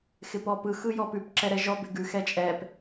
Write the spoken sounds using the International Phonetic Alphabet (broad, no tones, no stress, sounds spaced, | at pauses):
x ɪ p ɔ p ɯ x ɯ j ɔ p ʉ p ǁ ɛ ɾ ɛ ʒ ɔ b ɪ ɡ ʉ x ɛ t͡ʃʼ ɛ p